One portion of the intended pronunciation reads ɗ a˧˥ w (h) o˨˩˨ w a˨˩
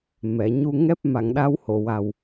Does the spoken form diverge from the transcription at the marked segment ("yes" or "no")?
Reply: no